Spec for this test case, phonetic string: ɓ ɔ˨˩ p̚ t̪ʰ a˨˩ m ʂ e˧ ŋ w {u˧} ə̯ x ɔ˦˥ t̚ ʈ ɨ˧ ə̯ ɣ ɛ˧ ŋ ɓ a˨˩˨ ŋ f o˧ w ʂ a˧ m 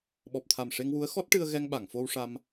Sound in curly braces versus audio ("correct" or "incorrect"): incorrect